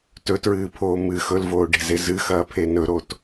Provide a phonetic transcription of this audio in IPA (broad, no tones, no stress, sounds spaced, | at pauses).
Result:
t ɵ t ɹ ɨː pʰ oː m ɨ x ɵ l v oː ɖ e̤ z e z ɨ x ɐː pʰ e n ɵ ɾ o t